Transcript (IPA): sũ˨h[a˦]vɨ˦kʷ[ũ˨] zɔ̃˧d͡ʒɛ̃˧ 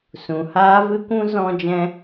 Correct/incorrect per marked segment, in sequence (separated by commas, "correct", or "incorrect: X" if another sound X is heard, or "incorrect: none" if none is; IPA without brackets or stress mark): incorrect: aː˦, incorrect: ũ˦